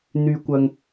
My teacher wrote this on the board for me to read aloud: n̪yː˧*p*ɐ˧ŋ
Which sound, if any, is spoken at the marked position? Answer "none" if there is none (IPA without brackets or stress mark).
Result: kʷ